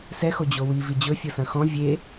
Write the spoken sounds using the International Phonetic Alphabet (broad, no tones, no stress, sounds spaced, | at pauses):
s ɛ x o d͡ʑ o w i v i d͡ʑ ɵ fʲ ɤ s ɐ̃ x ɔ̃ vʲ e